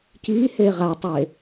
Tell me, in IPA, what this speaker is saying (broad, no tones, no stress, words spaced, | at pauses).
cihe ʁatˤe